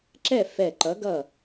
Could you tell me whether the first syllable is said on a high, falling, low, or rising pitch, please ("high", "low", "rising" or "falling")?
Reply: falling